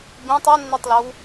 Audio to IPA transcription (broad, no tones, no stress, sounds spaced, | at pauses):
b ĩ tˤ o nː i tˤ l o w